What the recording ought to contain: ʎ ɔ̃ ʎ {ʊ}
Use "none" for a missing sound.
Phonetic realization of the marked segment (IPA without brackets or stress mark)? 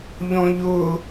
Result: ʊ